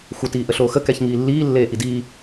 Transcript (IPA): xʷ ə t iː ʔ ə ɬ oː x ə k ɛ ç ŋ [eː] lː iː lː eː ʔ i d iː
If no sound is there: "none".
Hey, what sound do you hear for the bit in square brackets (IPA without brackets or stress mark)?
iː